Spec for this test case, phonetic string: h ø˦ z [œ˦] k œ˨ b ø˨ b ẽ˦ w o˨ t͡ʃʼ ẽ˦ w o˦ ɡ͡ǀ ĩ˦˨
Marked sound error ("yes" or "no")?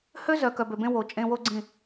yes